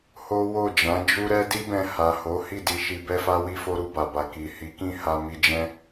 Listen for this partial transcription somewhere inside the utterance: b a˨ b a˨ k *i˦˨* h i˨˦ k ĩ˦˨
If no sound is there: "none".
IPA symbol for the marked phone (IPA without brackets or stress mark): i˨